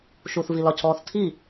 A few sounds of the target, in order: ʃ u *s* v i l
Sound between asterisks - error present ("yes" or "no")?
yes